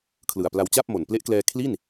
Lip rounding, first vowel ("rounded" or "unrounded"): unrounded